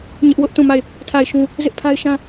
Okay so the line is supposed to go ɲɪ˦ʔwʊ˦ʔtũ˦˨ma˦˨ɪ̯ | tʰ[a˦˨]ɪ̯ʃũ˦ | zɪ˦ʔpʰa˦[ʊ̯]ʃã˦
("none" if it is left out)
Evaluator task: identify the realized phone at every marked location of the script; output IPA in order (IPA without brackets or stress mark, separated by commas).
a˦˨, ɪ̯